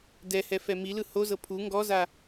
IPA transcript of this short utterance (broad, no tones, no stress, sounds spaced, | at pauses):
d ɛ h ɛ f ɛ m i l ɯ h o z ɤ pʰ u ŋ ɡ ɔ z a